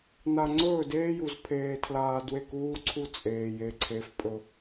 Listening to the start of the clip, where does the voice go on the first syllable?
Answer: low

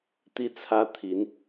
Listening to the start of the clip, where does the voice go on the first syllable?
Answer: falling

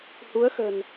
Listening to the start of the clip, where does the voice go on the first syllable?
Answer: rising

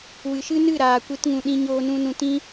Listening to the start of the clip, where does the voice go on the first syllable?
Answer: low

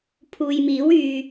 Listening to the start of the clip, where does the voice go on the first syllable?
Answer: low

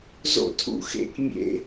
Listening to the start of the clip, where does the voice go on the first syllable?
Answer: falling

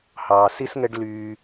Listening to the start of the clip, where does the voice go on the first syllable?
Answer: low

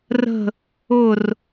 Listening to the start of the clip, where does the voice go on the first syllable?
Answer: falling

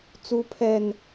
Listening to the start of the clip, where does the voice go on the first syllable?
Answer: high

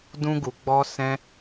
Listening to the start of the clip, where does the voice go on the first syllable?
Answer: high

